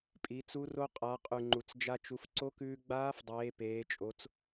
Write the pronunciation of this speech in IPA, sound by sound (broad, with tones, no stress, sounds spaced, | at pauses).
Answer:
pʼ i˩˧ t͡s u˧˥ r o˧ qʼ a˩˧ qʼ ʉ˩ ŋ͡ǃ u˩ t͡s d͡ʒ a˧ t͡ʃ u˩˧ f ǀ o˧˥ k ʉː˧ ɡ͡b aː˧˥ f dˤ eː˩˧ p eː˩˧ t͡ʃʼ o˩˧ t͡s